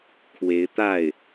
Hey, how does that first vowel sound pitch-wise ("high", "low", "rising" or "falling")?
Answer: rising